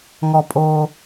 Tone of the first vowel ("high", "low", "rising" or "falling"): low